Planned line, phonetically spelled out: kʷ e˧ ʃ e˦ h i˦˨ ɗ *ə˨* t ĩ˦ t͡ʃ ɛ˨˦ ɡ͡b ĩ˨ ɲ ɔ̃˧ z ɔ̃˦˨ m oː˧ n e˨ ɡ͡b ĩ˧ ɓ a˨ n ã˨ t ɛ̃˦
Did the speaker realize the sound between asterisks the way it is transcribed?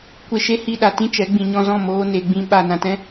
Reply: no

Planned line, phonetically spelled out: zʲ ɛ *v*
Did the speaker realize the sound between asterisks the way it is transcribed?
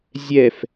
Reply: no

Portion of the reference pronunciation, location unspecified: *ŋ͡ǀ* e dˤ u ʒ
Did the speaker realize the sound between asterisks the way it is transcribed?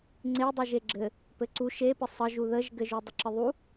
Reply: yes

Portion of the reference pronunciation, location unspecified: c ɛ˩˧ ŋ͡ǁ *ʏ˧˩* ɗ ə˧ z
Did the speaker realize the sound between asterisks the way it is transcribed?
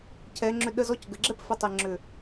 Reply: yes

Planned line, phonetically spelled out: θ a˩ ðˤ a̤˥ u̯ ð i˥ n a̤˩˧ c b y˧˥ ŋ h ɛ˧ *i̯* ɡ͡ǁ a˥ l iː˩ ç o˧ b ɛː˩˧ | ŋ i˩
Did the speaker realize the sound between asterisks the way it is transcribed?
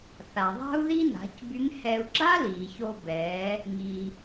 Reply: no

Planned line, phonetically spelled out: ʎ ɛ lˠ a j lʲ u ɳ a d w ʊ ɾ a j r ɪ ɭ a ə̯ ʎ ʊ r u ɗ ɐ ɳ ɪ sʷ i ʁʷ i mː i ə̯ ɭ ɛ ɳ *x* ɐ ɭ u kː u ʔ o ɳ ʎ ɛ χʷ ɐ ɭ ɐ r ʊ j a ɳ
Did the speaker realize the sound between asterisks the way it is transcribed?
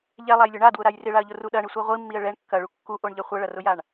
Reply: no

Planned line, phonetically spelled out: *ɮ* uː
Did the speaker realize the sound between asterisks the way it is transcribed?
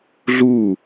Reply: yes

